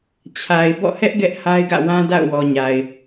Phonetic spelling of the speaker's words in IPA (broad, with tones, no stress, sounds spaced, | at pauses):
t͡ɕʰ a˨ ɪ̯ b ɔ̰˦˨ h ɛ˦ ʔ ɡ ɛ˦ ʔ h a˦ ɪ̯ ɡ ä̰˦˨ w ã˦ d a̰˦˨ ʊ̯ w ɔ˨ ɲ a˨ ɪ̯